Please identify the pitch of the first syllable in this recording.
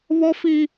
high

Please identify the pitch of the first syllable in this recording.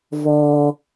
low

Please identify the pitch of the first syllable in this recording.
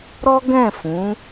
high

